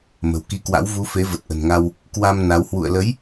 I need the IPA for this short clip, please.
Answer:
mə̤˨˩wki˧kwa̰˧˥w vu˨˦ fe˨˦və˨˩t̚ʔə̤˨˩nŋa˧w | kwa˧m na˨˦w hwṵ˧˨ə̯lə˨˦j

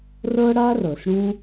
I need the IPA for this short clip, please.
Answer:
rɤ˦ɽa˦rɤ˨s ɽũ˦

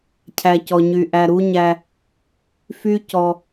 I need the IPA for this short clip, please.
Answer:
cʰæ˨cɔ˨ɲy˨ ʔæ˨ɾu˦ɲæ˦ | fy˦ cɔ˦

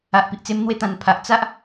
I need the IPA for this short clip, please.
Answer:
a˨ʔpi˨ʔt͡se˧m n̪we˧t̪ã˨˩npʰa˨ʔ t͡sa˦ʔ

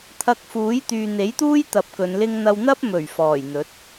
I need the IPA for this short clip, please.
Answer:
t̪ʰɐ˧k̚fuː˨˥j t̪yː˨n̪e˨˥jt̪uː˥j t̪ɐ˨˥p̚ kɵ˨˧nlɪ˥ŋn̪ɐ˥w n̪ɐ˥p̚mɵ˨˩ɥ fɔː˨˩jn̪ɵ˨˥t̚

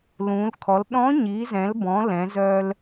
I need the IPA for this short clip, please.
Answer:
lũ˩˧lkʰɔ˩˧l ɗɔ̃˧˥ɲi˩˧zɛ̃˩˧lbɔ̃˩˧ lɛ̃˩˧zœ˧l

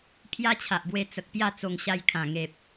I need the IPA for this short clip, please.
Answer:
pʰja˦t͡ɕʰa˨ʔbwe˧ t͡sə˨k̚pja˥˧ t͡so˧ŋ ɕa˧jkʰã˨˩ŋe˨p̚

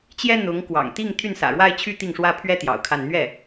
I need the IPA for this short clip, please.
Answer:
t͡ɕjɛ˥ n̪ʊ˧˥ŋ kwɑ̰˨˩ŋt̪i˥˧ŋ t̪ʰy˥˩nsä̰˨˩ɻwa˥˧ɪ̯t͡ɕʰy˥˧ t̪i˥˩ŋʂwä˥pʰɥɛ˥ t̪jɑ̰˨˩ʊ̯kʰa˥˧n n̪ɥɛ˥˩

